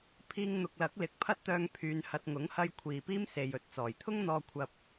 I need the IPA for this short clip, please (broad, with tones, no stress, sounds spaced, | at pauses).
pʰ iː˧ ŋ n̪ ʊ˨ k̚ l ɐ˨˥ k̚ l ɪ˨˥ k̚ pʰ ɐ˥ t̚ t̪ œː˧ ŋ pʰ yː˨˧ n h ɐ˨ t̚ ŋ ʊ˨˥ ŋ h ɐ˧ j kʷʰ iː˨ p iː˥ m s e˨ j ɵ˨˥ t̚ t͡s ɔː˨˩ j t̪ʰ ʊ˥ ŋ n̪ ɔː˧ kʷʰ ɐ˧ p̚